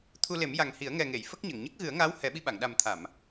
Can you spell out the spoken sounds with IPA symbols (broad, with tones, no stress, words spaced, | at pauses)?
t̪ʰu˧le˨˩˦mja˨˩ŋhi˨˩˦ə̯ ŋɛ˨˩ŋe˨˩˨j fə˦˥k̚ɲə˨˩˨ŋ ɲə˦˥k̚ɣɨ˨˩˦ə̯ŋaː˧˥w hɛ˨˩˦ɓi˧ɓa˨˩˨ŋ ɗa˨˩mt̪ʰa˨˩˨m